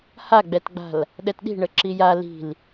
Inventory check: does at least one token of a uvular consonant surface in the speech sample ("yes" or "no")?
no